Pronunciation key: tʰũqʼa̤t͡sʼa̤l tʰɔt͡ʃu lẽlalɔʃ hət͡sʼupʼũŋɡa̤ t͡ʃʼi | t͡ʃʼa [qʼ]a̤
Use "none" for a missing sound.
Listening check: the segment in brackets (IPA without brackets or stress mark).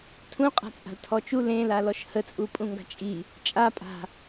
pʼ